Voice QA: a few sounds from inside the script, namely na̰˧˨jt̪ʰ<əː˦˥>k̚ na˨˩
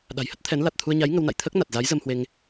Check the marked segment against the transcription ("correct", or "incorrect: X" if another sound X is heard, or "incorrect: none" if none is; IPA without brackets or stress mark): correct